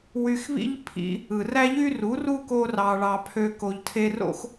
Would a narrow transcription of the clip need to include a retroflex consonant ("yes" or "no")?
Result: yes